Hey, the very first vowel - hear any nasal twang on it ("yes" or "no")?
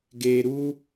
no